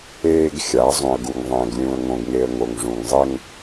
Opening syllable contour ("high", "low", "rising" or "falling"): high